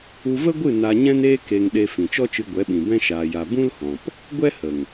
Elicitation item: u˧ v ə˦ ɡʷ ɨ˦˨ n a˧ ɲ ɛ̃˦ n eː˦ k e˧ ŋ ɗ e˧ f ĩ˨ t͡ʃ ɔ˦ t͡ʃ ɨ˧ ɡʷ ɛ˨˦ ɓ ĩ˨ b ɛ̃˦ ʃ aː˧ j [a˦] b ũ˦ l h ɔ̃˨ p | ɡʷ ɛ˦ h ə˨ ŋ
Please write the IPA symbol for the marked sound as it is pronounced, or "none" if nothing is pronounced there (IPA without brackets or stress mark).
a˧